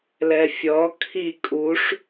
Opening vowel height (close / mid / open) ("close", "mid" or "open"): mid